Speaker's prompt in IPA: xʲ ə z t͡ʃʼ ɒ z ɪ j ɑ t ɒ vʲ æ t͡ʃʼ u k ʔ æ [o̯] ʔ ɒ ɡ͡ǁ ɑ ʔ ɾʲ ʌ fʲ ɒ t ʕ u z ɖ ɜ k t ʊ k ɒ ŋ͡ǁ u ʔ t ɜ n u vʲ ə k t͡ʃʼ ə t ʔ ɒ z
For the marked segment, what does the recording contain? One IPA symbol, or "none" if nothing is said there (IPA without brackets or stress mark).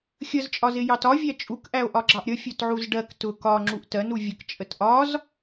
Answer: o̯